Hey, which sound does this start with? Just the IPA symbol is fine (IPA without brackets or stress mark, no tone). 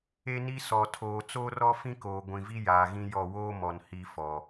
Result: e